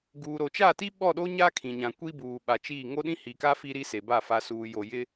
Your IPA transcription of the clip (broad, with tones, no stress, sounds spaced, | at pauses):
ɡ uː˨ ɾ o˨ t͡ʃ a˦˨ t i˦ ɓ ɔ˦˨ ɗ o˦ ɲ aː˦ kʰ ĩ˨ ɲ ã˨ kʷ i˦ b uː˨ ɓ a˨ t͡ʃ i˦˨ ŋ o˦ ɗ ĩ˦ h i˨ k a˦ f i˦ ɾ i˦ s e˨ b a˦˨ f a˨ s uː˨ j o˨ j ɪ˦